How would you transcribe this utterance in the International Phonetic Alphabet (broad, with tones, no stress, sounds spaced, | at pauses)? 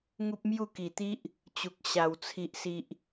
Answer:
ŋ u˦ p̚ m j u˥˧ k i˨˩ t̪ i˦ ʔ | t͡ɕ u˨ k̚ ɕ a˨˩ w t͡sʰ i˨ ʔ s i˨ ʔ